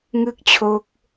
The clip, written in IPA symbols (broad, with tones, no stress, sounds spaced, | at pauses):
ŋ ɯ˥˩ k̚ t͡ɕʰ o˦˥ k̚